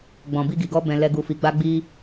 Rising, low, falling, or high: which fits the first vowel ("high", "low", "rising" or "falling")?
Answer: low